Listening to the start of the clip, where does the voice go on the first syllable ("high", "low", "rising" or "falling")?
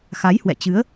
rising